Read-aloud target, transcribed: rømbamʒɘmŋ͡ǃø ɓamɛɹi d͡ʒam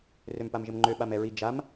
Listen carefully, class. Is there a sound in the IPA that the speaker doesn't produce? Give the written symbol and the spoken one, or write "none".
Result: b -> p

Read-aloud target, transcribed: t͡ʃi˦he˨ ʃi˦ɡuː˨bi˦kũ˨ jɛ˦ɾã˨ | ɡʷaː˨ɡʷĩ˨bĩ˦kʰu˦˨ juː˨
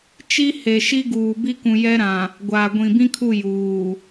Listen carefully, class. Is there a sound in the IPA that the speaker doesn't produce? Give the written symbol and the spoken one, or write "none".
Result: none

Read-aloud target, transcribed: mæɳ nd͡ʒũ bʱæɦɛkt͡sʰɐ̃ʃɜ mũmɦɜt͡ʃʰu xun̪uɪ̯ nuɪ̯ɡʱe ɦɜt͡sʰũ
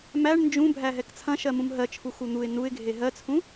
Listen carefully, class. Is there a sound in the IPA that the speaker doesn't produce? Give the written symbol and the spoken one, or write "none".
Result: none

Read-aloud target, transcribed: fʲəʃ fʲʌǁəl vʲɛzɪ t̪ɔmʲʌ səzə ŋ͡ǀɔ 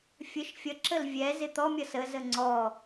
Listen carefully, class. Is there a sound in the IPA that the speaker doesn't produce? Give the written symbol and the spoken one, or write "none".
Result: none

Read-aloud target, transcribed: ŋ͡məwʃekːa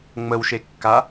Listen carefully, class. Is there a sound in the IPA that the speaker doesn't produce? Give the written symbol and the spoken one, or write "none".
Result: none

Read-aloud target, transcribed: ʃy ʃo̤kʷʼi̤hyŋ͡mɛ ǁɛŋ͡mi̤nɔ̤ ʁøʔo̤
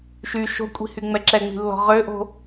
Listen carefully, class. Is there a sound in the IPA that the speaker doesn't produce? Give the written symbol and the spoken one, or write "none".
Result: n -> lː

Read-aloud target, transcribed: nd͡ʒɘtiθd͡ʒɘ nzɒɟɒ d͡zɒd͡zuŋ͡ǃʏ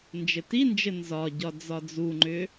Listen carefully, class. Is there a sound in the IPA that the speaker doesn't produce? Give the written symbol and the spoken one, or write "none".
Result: θ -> n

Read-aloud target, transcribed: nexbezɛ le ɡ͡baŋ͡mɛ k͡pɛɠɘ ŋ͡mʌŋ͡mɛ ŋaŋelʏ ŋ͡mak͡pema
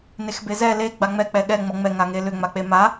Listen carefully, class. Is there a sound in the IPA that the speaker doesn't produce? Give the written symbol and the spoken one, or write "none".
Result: ɘ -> ɛ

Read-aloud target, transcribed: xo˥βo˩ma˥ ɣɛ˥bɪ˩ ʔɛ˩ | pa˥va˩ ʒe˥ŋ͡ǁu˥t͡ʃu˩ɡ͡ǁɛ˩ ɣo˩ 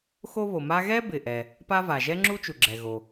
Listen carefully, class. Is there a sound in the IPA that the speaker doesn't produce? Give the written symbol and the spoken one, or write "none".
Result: e˥ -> ɛ˥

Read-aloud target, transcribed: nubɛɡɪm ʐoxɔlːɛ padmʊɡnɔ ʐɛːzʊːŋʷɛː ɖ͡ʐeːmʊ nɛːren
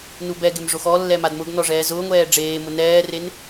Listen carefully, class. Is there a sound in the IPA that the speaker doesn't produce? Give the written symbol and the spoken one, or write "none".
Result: p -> m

